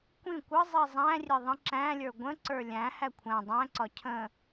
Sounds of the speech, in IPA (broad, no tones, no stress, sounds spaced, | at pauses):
kʷ ĩ kʷ ə zˤ i zˤ æ̃ rʲ e ðˤ ə̃ ǁ æ̃ lʲ ə˞ ɡʷ ə̃ ǀ ə˞ lʲ æ̃ h æ kʷʰ æ̃ dˤ æ̃ ǀ ɒ cʰ ə̃